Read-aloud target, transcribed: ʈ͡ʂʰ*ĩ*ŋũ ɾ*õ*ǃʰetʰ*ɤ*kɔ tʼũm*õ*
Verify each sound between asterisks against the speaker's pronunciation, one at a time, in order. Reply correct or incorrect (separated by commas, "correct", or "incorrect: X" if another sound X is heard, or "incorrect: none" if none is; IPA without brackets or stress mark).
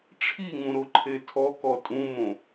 incorrect: i, incorrect: o, incorrect: ɔ, correct